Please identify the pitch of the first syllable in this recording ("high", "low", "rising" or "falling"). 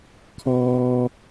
high